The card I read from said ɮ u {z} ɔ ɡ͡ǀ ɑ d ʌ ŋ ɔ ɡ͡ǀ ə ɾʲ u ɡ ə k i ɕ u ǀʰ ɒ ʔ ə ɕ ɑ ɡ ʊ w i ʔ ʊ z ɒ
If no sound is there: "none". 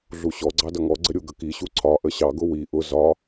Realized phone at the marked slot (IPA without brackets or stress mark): ɕ